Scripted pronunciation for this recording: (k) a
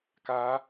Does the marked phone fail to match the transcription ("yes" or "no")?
no